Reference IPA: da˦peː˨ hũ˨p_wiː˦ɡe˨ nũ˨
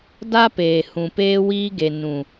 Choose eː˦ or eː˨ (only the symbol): eː˦